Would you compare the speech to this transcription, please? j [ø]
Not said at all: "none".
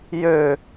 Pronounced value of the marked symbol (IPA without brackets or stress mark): ø